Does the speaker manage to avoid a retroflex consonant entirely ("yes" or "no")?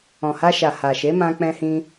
yes